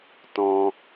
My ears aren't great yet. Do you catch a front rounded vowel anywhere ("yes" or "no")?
no